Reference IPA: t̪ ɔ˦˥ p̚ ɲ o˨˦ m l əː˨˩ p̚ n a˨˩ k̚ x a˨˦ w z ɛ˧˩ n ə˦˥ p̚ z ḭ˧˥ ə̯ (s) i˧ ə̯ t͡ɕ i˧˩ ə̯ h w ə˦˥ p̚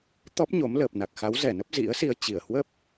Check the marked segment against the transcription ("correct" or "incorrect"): correct